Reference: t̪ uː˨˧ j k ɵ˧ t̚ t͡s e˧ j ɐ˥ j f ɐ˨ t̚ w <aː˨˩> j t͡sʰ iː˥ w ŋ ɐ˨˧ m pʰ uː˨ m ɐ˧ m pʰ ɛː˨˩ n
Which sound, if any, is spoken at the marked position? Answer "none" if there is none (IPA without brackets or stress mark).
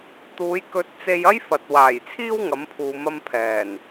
aː˨˩